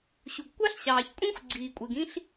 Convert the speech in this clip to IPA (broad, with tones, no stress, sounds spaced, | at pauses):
ɕ u˩ ɡ kʷ ɑ˥ ɬ ɕ ɑː˩ ç kʷʼ ĩ˥ xʷ ɡ͡ǀ iː˩ kʷʼ e˩ ɡ ĩ˥ ɬ